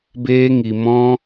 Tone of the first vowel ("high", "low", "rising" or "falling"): high